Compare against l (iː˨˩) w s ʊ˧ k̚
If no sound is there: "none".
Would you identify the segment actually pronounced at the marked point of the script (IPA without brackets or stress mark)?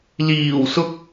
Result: iː˨˩